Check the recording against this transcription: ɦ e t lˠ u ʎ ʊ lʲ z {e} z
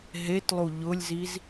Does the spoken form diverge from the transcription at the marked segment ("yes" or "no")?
yes